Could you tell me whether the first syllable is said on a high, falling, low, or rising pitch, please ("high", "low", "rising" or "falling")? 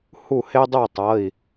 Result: falling